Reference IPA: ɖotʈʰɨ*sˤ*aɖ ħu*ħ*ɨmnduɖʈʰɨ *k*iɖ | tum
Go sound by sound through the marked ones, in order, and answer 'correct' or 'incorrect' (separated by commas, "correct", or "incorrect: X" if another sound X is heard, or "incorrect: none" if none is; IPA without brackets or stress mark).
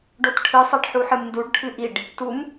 correct, correct, incorrect: ʔ